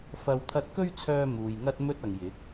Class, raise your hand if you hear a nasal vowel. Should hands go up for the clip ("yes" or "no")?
no